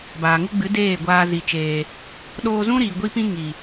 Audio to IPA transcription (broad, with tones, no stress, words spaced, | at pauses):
baː˨ŋu˦ ɡ͡bɨ˨˦ deː˦˨ɡʷaː˧zi˨t͡ʃeː˨ | ɗoː˧zũ˦ɾiː˨ ɡʷi˦pĩ˦ ŋi˨